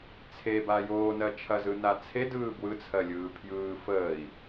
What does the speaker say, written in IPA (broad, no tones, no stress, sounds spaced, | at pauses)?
t͡sʰ e b a j oː n ɜ t͡ʃʰ ɐ z ɯ n a t͡sʰ e d ɯː b w ɯ t͡sʰ ɜ lʲ ɯː pʰ j ɯː f əː i̯